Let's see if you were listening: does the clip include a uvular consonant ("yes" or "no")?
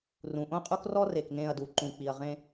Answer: yes